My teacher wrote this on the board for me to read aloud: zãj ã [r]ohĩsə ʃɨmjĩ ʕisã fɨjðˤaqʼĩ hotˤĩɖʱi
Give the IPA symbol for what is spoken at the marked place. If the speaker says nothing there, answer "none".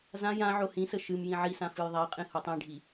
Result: ʕ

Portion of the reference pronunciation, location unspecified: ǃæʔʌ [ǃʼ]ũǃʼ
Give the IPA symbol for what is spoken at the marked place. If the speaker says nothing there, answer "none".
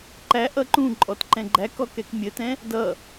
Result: ǃ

